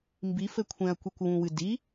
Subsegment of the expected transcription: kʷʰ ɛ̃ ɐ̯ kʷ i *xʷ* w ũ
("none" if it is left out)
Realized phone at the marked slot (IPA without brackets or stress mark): kʷ